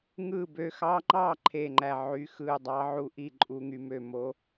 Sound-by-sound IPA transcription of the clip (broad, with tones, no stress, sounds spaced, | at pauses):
ŋ ɯ˥˩ b ø˧ x ɑ˧˥ ŋ͡ǃ ɑ˥˩ ǃʰ e˥˩ ŋ͡ǃ æ˥˩ ʕ y˧˥ x ɯ˥˩ dˤ ɑ˧˥ ʕ u˧ ʔ i˥˩ ǃʼ u˧ ŋ y˧ m ø˥˩ m o˧˥